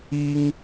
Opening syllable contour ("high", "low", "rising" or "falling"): high